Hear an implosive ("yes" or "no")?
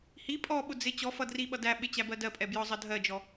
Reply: yes